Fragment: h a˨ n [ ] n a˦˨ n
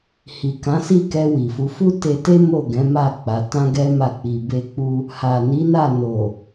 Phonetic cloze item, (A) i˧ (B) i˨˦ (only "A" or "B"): B